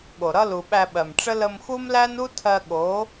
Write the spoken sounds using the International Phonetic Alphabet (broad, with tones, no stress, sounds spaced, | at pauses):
ɠ o˨ ɾ ʌ˦ l u˨ ɓ æ˧ ɓ ɜ˨ m ʈ͡ʂ ə˦ l ə˧ m x u˦ m l æ˦ n u˦ tʰ ɜ˧ ɠ o˨˦